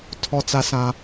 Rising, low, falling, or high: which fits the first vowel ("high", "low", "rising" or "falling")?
high